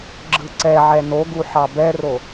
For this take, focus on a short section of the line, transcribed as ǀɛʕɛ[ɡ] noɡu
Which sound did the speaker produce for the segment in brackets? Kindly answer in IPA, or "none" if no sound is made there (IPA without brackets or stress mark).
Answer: none